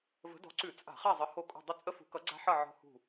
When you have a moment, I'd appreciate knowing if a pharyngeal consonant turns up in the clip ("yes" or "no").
yes